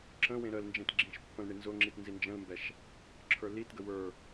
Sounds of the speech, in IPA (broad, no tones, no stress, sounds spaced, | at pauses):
ǁ ə̃ w ẽ ɾ ə l n d͡ʒ ẽ t ɡ͡ǁ ĩ ʃ pː ə̃ l ɳ i n z ʊ ŋ͡ǁ i t n z i n d͡ʒ ə̃ l m b ɛ ʃ | ǁʰ ə˞ l i t ɡ ə w ə˞